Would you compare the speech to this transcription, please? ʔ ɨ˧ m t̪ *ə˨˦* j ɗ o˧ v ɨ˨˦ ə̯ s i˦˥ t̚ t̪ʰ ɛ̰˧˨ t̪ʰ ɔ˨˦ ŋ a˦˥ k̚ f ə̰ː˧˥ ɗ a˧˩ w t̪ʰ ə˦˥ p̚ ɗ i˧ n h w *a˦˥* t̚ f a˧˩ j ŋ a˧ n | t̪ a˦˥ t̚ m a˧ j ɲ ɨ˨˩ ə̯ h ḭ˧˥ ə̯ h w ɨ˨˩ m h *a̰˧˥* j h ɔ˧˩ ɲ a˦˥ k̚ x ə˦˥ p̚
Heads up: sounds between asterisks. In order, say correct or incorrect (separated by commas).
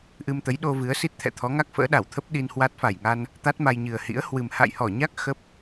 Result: correct, correct, incorrect